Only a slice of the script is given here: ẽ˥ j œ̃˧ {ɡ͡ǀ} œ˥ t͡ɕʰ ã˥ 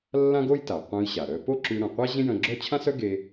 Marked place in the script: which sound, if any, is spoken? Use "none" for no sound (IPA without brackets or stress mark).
ɡ͡ǁ